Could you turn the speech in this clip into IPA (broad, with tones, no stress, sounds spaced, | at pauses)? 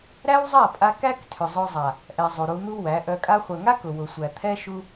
ɾ æ˦ w zˤ a˦˨ pʼ a˧ k æ˦ k tʰ ʏ˨ zˤ ʊ˧ zˤ a˨ | ʔ ɛ˨ zˤ u˨ ɾ u˧ n̪ u˦ w æ˨˦ ʔ œ˧ kʼ a˧ χʷ œ˨ ŋ a˦ k ʊ˨ w ʊ˨ sʷ æ˨ t̪ʰ ɛ˦ ʃ u˧